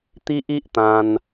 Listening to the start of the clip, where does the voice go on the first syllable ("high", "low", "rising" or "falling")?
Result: high